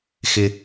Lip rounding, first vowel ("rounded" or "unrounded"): unrounded